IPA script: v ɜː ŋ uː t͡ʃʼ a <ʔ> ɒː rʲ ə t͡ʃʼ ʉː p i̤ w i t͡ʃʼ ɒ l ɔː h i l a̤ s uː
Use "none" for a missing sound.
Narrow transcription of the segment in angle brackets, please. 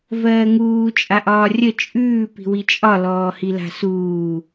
ʔ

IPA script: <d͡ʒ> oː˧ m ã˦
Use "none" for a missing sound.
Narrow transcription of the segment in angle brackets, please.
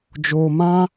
d͡ʒ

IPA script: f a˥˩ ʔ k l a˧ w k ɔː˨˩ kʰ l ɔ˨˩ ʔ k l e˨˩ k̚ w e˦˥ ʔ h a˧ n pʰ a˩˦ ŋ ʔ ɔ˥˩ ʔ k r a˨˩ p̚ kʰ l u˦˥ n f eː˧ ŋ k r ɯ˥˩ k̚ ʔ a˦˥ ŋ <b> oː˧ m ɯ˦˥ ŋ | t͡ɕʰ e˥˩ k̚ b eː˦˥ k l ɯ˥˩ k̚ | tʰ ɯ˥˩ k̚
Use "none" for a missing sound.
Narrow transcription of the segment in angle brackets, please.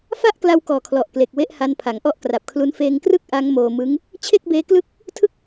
m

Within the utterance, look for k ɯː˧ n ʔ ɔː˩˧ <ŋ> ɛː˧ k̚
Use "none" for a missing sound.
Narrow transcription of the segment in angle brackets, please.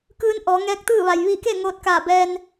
ŋ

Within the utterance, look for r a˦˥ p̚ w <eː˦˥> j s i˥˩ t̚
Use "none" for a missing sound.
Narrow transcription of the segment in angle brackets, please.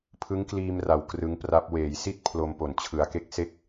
eː˩˦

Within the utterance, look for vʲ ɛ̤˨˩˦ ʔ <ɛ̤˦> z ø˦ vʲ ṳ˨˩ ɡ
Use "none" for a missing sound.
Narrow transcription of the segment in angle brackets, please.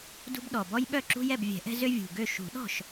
ɛ̤˦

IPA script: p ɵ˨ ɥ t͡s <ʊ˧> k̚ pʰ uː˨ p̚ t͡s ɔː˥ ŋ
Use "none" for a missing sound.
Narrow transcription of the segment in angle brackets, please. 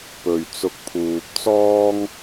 ʊ˧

